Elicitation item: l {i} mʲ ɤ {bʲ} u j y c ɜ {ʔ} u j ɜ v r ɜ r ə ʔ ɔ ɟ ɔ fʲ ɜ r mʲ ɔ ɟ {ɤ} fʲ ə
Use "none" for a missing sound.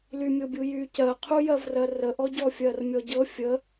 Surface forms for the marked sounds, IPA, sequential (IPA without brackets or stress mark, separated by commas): y, bʲ, qʰ, ɤ